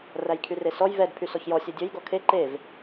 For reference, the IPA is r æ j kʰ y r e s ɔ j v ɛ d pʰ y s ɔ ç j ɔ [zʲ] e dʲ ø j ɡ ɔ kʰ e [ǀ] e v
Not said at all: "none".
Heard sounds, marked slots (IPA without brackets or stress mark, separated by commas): sʲ, ǃ